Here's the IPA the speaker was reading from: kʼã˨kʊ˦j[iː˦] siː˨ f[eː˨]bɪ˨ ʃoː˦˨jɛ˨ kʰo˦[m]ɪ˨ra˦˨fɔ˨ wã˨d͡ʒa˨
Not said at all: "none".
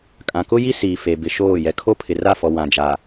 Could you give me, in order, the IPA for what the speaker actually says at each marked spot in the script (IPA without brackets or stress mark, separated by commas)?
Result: i˦, e˨, pʰ